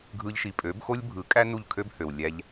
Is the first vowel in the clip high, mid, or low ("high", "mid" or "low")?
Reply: high